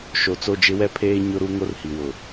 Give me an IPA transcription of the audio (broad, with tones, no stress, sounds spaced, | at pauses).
ʃ o˨ t͡s o˦˨ d͡ʒ ɪ˦ w ɛ˦ pʰ eː˦ ɲ ʊ˦ ɾ u˦ ŋ o˦ r h i˨ w ʊ˨